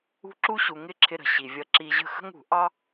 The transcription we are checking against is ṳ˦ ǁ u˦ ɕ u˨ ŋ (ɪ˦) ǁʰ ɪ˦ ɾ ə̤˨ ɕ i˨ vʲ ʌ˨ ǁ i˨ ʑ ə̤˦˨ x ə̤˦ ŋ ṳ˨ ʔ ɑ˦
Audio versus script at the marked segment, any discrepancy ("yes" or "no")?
no